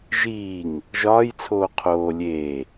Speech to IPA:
ʒ iː ŋ | ʒ ɒː j t͡sʰ oː qʰ oː lʲ eː

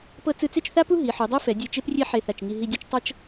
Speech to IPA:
p ɤ˥ t͡s ɯ˧ t͡s e˥˧ t͡ʃ θ a˥ p u˥ ɦ i˩˧ ħ u˩˧ dˤ e˥ f ɛ˩˧ dʲ ɛ˧ t͡ʃ e˥ p rʲ e˥ ħ e˧˩ θ a˧˩ t͡ʃ ŋ i˧ ɦ i˧ dʲ ɤ˥ t͡ʃ tˤ ɤ˥ t͡ʃ

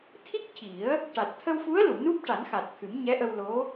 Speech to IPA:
t̪ʰ i˦˥ k̚ c i˨˩˦ ə̯ | ʈ a˨˩ t̚ t̪ʰ ə˧ w f u˧˥ ə̯ l u˨˩˨ n u˦˥ p̚ ʈ a˨˩˦ n x a˨˩ t̚ t̪ʰ ɨ˨˩˦ m ɲ ɛ˧˥ ʔ ə˧ w l o˧˥

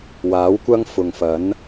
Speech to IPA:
w aː˨˥ w kʷ ɐ˥ ŋ f ʊ˨ ŋ f ɐ˨˥ n

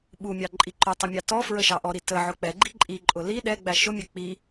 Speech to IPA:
ɓ u mʲ ɑ ǃʼ i ǃ ʊ tˤ ɪ mʲ ɑ t ɔ f ɹ ə ʃ ɑ ʔ ɔ ɾ i t ə ʕ ʊ k͡p ɛ ɡ͡ǃ i ǃʼ i ǃʼ ʊ l i ɗ ɛ ɡ͡b æ ʃ ʊ mʲ ɛ k͡p i

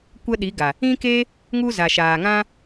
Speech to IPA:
kʷ ə˦ ɗ i˨˦ ɡ a˨ | ĩ˦ k e˦ | ŋ u˦ z a˨ ʃ aː˨ ŋ ã˦

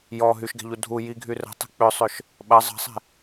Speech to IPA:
j ɔ ɦ y ʃ ɡ ɛ̤ ʎ u dʱ u j i ɡʱ y r ə̤ tˤ ɛ̤ k͡p ʏ sˤ ʏ ʃ | ɓ ɐ zˤ ə̤ sˤ ɛ̤

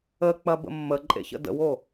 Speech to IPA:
ə k͡p ɐ b ə̰ mː ə ǃʼ ḛ ç ə̰ d ə̰ w o

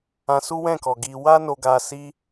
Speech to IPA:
ã˧ s u˦ w ɛ̃˦˨ k ɔ˨ ɡ i˧ w a˦ n o˧ ɡ a˧ s i˦

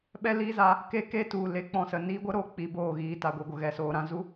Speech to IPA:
ɓ ɛ˦ l iː˦ z a˧ | k e˦ k e˦ t u˨ l e˨˦ k͡p ɔ̃˨ s ə˨ n iː˦ ɡʷ ə˦ ɾ o˨ k͡p i˧ b oː˦˨ ɣ iː˧ t a˨ ɡʷ i˨ ɡʷ ə˨ ɣ ɛ˨ s oː˨ ɾ ã˦ z u˦

